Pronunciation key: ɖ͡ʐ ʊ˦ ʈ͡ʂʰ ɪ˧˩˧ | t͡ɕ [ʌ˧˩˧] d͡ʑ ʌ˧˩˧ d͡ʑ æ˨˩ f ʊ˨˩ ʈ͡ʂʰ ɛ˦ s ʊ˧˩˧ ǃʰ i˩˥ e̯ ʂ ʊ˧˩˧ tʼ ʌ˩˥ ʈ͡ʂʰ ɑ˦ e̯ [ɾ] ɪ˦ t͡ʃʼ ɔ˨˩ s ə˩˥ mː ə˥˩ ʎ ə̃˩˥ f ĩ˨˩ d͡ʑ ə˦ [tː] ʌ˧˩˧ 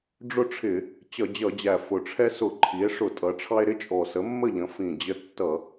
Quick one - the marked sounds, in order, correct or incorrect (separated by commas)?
correct, correct, correct